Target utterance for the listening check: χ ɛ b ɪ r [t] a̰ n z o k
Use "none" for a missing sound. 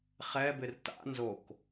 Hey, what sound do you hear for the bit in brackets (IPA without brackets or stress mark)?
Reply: t